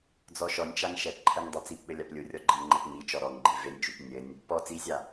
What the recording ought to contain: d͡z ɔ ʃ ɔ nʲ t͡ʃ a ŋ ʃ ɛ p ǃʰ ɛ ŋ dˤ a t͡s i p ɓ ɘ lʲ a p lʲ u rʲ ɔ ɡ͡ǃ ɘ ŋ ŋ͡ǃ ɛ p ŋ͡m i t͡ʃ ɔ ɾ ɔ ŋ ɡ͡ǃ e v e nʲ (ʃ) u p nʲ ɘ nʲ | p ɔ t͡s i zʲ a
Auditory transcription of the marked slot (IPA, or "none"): t͡ʃ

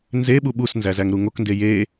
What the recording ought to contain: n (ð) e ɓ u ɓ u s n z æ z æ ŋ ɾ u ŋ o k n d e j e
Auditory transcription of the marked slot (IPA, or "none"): z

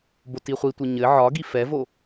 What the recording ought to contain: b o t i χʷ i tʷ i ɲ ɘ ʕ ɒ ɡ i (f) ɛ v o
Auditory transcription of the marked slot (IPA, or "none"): f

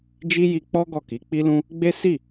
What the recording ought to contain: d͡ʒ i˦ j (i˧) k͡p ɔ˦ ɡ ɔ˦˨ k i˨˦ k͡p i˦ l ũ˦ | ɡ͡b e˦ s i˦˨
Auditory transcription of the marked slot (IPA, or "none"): i˧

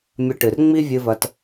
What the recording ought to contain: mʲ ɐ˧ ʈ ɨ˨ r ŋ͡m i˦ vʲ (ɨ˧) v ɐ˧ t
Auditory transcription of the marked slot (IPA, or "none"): ɨ˧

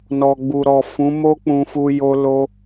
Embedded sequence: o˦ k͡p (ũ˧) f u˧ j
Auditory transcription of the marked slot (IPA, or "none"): ũ˧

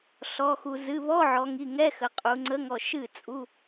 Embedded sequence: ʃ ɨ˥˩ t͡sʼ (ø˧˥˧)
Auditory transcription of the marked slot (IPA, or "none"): u˧˥˧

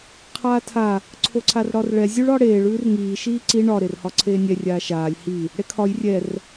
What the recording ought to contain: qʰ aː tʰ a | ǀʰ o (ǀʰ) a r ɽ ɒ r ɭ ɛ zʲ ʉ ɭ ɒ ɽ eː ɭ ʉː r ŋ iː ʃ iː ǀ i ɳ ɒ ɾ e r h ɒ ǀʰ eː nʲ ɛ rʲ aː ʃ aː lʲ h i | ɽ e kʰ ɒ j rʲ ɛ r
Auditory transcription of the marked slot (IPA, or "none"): ǀʰ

